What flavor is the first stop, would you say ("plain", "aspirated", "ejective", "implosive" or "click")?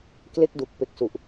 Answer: plain